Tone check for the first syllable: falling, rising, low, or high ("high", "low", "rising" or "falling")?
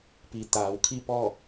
low